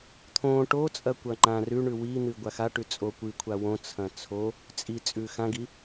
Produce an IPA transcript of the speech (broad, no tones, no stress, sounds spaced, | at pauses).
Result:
t̪ʰ õ ʈ o t͡sʼ ɐ kʷ ɐ ŋ͡ǃ ã r ʉ ɳ ʉ w i n̪ ɨ ɡʷ a x a ʈ ʉ t͡sʼ o kʷ ɨ kʷʰ a w õ t͡sʰ ɐ̃ t͡sʰ o | t͡sʼ i t͡sʼ ʉ x ã ɡ i